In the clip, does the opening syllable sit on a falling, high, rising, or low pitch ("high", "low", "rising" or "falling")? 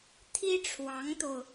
high